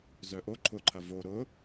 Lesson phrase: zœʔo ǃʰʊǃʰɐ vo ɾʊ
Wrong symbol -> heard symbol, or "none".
none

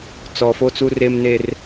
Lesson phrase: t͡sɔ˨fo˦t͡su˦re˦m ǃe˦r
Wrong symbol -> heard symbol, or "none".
ǃ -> n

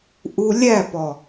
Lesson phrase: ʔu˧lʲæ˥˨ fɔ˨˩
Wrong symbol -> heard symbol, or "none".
f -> p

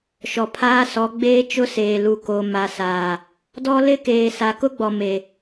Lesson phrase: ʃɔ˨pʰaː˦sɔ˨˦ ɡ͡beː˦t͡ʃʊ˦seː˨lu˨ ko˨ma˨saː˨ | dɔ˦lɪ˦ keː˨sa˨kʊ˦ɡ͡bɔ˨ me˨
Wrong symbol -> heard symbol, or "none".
none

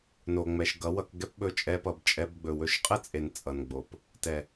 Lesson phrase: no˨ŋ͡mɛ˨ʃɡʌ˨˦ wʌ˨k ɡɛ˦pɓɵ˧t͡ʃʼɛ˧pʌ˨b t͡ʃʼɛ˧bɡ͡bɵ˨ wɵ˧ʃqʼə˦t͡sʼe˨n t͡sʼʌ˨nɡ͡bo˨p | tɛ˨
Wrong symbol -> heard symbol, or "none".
none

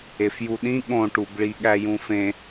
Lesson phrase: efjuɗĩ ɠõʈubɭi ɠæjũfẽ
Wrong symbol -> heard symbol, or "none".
none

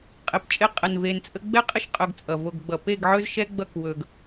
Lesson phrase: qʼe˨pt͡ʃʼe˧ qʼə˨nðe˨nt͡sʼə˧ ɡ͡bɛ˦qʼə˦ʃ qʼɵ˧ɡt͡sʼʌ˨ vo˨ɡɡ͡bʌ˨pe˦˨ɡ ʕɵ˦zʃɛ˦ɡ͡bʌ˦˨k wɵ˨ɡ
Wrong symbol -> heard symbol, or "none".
ð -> v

